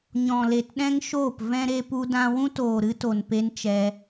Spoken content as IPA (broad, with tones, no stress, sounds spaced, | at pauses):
ɲ ɔ̃˨ l e˨ t ɗ ɛ̃˦ ŋ ʃ oː˦˨ p v ɛ̃˧ ɾ e˧ p u˧ d ã˧ w ũ˦ t oː˨ ɾ ɨ˧ t o˨ n p e˦ n t͡ʃ ɛ˧